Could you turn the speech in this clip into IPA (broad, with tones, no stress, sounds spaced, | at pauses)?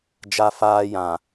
d͡ʒ a˦ f aː˦ j ã˨